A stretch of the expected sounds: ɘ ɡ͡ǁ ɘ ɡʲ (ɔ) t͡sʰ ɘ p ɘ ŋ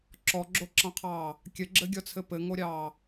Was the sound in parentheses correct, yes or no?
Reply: yes